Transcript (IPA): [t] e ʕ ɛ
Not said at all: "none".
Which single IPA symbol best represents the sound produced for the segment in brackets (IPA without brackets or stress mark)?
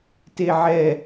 t